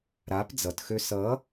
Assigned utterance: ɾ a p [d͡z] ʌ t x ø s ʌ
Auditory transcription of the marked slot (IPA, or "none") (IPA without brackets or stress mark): d͡z